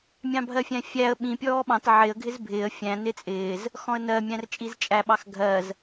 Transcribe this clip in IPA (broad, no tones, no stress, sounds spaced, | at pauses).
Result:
mʲ ɑ̃ bʱ ɜ fʲ æ̃ fʲ æ ə̯ ɓ ĩ pʲ ɔː ɓ ɑ̃ t ʕ ɪ ə̯ ɡʱ ɪ z bʱ ɪː ə̯ fʲ æ̃ n ɪ t͡sʼ ɪː z | x ɔ̃ ə̯ n ɜ mʲ æ̃ r t͡ʃʼ i z t͡ʃʼ æ ɓ ɑ x ɡʱ ɜ z